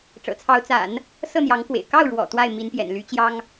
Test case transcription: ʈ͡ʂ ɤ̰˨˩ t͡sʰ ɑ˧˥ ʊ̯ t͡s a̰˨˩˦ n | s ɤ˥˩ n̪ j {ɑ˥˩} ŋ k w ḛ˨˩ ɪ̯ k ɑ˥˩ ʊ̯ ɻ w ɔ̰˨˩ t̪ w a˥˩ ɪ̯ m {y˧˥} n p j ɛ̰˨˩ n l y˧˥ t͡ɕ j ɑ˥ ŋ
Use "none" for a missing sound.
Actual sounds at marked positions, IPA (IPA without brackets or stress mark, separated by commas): ɑ˧˥, i˧˥